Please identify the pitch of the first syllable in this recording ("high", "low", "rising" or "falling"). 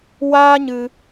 high